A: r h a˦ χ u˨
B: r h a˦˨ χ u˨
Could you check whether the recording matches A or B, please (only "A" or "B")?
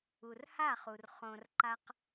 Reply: B